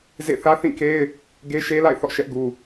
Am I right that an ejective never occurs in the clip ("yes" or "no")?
yes